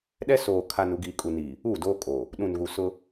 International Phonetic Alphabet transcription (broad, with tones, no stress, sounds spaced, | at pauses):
ɗ ɛ˦ s oː˨ kʰ a˨ n u˨ ɡ iː˨ kʼ u˨ n iː˨ | uː˦˨ d oː˦ kʼ oː˨ | ɗ ũ˨ n ɣ u˨ s ʊ˦